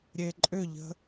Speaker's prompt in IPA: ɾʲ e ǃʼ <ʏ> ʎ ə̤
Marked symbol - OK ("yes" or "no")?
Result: yes